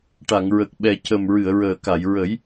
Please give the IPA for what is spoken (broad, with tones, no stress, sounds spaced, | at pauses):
ʈ a˨˩˨ ŋ ɹ ə˨˩ k̚ ɓ ɛ˨˩ c ə˨˩ m ɹ ɨ˨˩˨ ə̯ ɹ əː˨˩ k a˨˩˨ j ɹ ə˨˩˦ j